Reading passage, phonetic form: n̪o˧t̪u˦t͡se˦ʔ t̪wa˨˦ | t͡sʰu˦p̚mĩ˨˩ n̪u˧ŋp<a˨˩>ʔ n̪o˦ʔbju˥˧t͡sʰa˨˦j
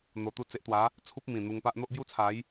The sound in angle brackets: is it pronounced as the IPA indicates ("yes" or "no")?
no